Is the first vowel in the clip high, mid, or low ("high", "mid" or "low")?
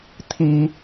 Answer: high